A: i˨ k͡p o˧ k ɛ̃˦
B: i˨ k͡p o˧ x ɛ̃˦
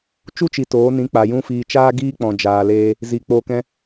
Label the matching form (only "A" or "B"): A